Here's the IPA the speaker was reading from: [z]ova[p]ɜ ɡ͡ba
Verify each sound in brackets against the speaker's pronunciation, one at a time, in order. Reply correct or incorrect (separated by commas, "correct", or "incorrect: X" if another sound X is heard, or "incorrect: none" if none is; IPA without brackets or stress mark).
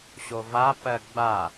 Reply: incorrect: ɕ, correct